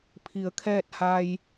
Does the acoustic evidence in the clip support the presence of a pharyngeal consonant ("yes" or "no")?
no